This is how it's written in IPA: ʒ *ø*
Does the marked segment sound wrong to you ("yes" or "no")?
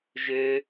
no